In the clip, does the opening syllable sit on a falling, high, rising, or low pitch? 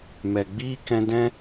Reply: low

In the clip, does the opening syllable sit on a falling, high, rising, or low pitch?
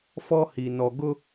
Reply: high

